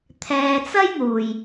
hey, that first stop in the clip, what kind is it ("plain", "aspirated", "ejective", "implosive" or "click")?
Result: aspirated